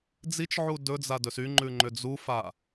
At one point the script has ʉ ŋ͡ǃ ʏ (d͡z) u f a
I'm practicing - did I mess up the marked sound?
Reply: no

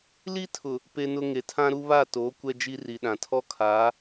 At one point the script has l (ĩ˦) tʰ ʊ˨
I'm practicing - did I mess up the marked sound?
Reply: yes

